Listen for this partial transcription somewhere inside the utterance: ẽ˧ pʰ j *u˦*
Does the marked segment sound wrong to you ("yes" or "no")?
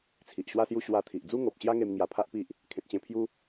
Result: no